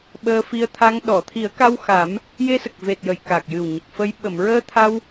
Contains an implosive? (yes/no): yes